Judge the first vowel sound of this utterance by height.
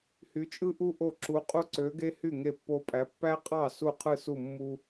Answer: high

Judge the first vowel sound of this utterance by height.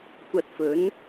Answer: low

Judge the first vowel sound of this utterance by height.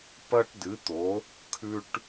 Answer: low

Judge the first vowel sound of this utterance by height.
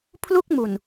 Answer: high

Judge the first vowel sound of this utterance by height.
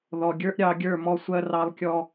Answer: mid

